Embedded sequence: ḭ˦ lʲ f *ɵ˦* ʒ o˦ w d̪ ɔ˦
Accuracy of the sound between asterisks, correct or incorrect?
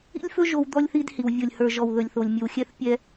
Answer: correct